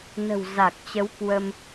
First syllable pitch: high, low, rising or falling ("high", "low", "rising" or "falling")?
low